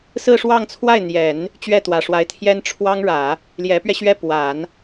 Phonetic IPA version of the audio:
sɹ̩˥˧ʂwɑ˥˧ŋt͡sʰwa˥˩ɪ̯n̪jɛ˨˩˦n | t͡ɕɥɛ˥˩t̪wä˨˩ʂwa˧˥ɪ̯t̪ʰjɛ˥n ʈ͡ʂʰwɑ˥ŋɻä˨˩˦ | ljɛ˧˥pɥɛ˧ɕɥɛ˥˩pwa˨˩˦n

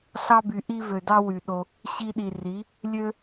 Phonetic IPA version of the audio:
ɬɑ˦by˨ʔi˦ vø˨dɑ˦wy˨ɗo˧ | ɕi˧ɗi˨ri˨˦ | lʲø˦

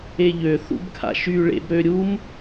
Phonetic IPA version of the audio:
eʎø θṵbkʰa̰ʃy ɭḛbɾøɾʲum

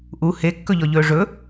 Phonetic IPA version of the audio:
ʔu hekːɵʎɔʎɵː ʐɵ

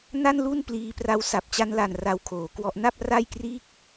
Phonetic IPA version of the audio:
na˥˩nlu˥˩npliː˧pra˦˥w sa˨˩p̚t͡ɕa˧nla˨˩n ra˧wkʰoː˩˦kwɔ˦˥ʔ na˥˩p̚ ra˥˩jkriː˥˩k̚

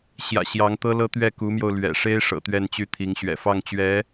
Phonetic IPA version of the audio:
ɕjä̰˨˩ ɕjɑ˧˥ŋt̪ɤ˥lɤ˥ t̪ɥɛ˥˩ku˧˥mjo˧ʊ̯ lɥɛ̰˨˩ ʂe˥ɪ̯ ʂɤ̰˨˩t̪ɥɛ˥˧nt͡ɕy˥˩t̪ʰi˧˥ŋ ɕɥɛ̰˨˩fɑ˥˩ŋt͡ɕɥɛ˧˥

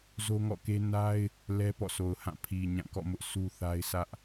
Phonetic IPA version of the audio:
zo˦ŋɔ̰˦˨ke˦ na˦ɪ̯ | lɛ˦pɔ̰˦˨sʰo˨ʊ̯hã˦˨ pʰi˨ ɲã˦˨kɔ̰˦˨mʊ˦ʔ sʰu˦θa˦ɪ̯sä˦ʔ

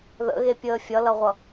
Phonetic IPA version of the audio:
ðə̰ɣepʲəː fʲʌlʌʁʷʌ

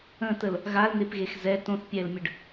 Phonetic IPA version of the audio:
ə̃təl | ɣaln̪epɣex zɛ tõθpʲɛːlmʲəɖ

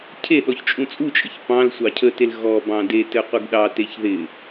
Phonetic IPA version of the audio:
cʰeɗɔç t͡ʃʼũt͡sʼut͡ʃʼɘç pɑ̃l sʷɑcʰətel ɣɔ bɑ̃detɘ qʷɪɡɗɑteç ðɪ

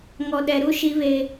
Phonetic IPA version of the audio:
ŋɔ˨ɗɛ˨ɾu˦ ʃi˦βe˦

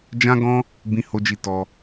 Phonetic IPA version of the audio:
d͡ʒã˦ɡɔ̃˦ | bĩ˦ho˦d͡ʒi˦˨ tɔ˧

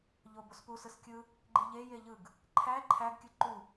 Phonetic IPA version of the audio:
ʎobospu sɯskʲɯ | ɡ͡ǃiʎe jeʎɯɡ | ǃʰæ ǃʰæɡ kʲɯǃu

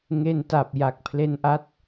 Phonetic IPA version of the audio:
ŋe˧nta˨˩p̚ ja˨˩k̚pʰle˧nʔa˦˥t̚

